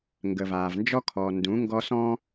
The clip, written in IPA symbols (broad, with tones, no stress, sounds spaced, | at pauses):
ŋ ɡ ə˨ v aː˨ v n d͡ʒ ɔ˦ kʰ ɔ˨ n d ũ˨˦ ŋ ɡ ɔ˦ s ɔ̃˦